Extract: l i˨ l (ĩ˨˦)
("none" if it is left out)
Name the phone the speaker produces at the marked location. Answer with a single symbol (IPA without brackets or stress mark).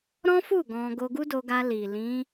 ĩ˨˦